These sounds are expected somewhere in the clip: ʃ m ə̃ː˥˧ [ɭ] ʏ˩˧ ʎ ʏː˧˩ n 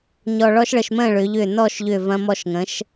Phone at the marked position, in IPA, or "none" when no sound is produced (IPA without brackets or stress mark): ɭ